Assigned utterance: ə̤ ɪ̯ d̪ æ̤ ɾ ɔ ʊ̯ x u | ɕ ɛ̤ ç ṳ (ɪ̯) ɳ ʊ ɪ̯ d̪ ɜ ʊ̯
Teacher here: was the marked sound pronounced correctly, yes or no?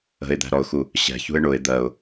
yes